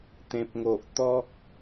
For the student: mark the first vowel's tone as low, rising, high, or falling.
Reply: low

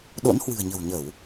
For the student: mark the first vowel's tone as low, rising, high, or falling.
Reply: rising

